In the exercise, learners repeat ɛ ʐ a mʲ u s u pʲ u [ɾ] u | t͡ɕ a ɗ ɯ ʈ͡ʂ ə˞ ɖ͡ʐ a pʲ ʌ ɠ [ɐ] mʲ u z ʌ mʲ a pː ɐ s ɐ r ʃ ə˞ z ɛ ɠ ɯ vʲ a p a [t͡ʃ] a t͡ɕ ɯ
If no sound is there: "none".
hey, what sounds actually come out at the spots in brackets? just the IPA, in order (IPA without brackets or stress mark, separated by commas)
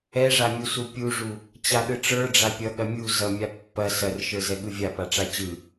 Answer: ʐ, ɐ, ʈ͡ʂ